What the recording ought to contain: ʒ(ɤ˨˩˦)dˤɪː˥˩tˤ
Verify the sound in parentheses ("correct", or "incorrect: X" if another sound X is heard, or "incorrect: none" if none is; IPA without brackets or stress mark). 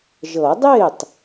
correct